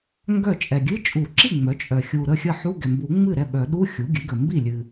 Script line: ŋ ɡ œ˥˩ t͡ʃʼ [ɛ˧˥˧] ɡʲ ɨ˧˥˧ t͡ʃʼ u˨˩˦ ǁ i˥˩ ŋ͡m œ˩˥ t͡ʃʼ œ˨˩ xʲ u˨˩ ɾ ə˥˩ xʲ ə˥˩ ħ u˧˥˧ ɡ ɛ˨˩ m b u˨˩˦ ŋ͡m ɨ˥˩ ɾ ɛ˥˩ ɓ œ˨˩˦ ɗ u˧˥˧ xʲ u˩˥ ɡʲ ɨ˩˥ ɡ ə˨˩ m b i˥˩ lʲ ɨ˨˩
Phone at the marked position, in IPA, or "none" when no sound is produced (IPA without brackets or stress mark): ɛ˨˩